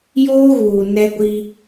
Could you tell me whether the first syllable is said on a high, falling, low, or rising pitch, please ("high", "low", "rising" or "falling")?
high